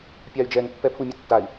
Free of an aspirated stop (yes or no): no